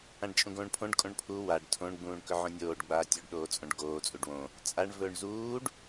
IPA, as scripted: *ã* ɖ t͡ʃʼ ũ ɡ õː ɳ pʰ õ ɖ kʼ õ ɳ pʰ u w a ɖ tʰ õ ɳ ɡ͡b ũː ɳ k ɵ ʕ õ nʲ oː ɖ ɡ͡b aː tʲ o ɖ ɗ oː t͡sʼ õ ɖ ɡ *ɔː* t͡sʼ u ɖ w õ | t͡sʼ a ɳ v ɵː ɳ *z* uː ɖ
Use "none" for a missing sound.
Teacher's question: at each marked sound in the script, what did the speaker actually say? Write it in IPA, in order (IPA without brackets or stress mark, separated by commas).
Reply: ã, oː, z